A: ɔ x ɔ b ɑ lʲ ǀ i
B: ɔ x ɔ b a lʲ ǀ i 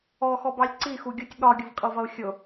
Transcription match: A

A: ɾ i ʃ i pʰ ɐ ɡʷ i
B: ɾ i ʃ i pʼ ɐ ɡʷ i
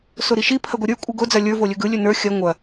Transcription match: A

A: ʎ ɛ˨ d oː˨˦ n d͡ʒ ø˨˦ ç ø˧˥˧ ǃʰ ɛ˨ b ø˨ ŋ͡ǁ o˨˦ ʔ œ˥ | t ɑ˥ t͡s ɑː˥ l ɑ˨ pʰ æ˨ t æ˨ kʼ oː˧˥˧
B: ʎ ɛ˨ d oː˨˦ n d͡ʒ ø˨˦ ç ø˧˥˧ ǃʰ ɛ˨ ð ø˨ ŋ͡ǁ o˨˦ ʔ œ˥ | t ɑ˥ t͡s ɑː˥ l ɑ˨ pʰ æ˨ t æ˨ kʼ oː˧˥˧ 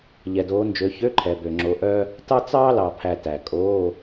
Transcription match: A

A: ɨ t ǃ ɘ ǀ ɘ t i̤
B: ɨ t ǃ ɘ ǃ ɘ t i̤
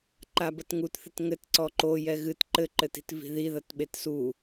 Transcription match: B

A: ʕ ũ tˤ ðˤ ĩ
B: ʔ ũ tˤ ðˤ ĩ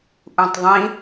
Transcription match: B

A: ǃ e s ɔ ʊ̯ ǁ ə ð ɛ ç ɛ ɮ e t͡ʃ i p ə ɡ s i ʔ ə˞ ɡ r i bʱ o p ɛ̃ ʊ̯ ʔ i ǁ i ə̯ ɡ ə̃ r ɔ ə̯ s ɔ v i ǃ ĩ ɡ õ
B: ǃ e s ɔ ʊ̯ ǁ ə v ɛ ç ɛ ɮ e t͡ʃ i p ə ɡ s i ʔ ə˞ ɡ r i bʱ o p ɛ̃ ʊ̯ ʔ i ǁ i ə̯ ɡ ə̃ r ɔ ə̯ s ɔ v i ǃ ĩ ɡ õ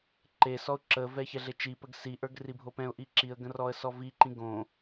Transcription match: B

